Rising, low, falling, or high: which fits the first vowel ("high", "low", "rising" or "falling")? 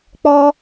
high